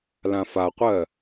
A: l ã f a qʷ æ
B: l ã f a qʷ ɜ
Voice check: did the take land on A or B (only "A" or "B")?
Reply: B